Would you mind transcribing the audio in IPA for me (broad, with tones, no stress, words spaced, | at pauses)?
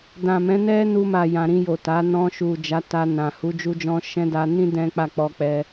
dã˨mɛ̃˨˦nɛ˦ nu˧ma˨ jã˨ɾĩ˧jo˨ ta˨˦ nɔ̃˧ʃu˨ d͡ʒa˨˦ta˧nã˨ hu˨˦d͡ʒu˦d͡ʒɔ̃˦ ʃɛ̃˦da˧ nĩ˦ dɛ̃˦k͡pa˦˨ k͡pɔ˧k͡pɛ˧